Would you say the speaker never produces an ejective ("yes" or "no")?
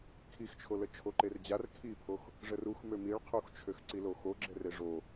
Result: yes